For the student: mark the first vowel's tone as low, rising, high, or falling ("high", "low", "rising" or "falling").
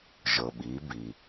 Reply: low